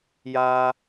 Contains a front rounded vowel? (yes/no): no